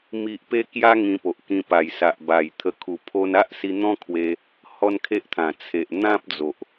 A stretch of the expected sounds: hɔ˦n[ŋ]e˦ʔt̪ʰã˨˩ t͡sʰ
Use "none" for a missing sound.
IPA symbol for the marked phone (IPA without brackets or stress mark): kʰ